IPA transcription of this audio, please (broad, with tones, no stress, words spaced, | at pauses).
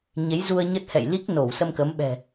ɲe˨˦j zu˧ə̯ ɲə˦˥t̚hɛ̰˧˨j li˦˥k̚no˧˩wsə˧m kə˨˦mɓɛ̤˨˩